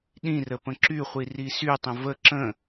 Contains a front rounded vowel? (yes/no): yes